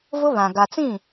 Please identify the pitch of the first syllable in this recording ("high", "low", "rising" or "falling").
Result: high